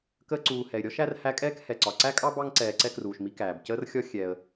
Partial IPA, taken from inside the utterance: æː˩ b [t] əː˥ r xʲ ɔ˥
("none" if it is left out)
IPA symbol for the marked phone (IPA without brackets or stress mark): c